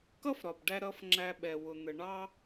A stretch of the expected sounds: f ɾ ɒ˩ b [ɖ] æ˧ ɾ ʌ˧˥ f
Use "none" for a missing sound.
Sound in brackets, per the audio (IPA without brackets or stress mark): ɖ